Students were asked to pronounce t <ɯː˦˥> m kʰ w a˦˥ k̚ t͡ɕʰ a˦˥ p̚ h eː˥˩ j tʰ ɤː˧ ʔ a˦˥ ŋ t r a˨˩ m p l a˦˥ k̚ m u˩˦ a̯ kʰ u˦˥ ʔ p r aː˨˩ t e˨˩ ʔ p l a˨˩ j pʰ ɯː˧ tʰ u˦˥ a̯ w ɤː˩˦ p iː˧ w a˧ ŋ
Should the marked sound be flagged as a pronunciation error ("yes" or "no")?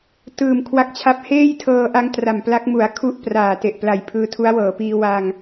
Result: yes